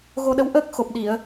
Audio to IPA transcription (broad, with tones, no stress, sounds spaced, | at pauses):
ɣ o˧ ɗ ə˧˥ w ʔ əː˦˥ k̚ x o˨˩ p̚ ɗ i˨˩˨ ə̯